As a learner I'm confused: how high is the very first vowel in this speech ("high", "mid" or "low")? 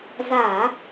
low